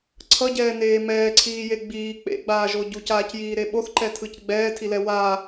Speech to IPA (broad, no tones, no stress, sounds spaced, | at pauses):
ǀʰ ʌ ɟ ɛː n eː m ɛː ǀʰ iː j e ɡ͡b iː k͡p ḛ ɡ͡b aː ʒ o ɟ u c aː c j iː ɾ e ɓ o θ ǃ ɛ tʰ ɯ c ɡ͡b ɛː tʰ i l ɛ w a